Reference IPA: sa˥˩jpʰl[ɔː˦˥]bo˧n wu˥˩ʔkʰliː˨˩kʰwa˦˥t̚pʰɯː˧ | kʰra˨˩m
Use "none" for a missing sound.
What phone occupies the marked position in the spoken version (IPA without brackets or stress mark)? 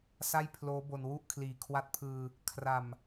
oː˦˥